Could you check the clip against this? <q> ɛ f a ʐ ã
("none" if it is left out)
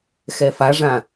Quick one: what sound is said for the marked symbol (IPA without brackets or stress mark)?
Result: x